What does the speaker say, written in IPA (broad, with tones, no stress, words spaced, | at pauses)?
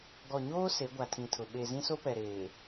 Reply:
ɡɔ˨ɲoː˦ se˨˦ɡʷa˨tʰĩ˨tʰʊ˨ ɓe˨zĩ˦so˦pɛ˨ ɾeː˨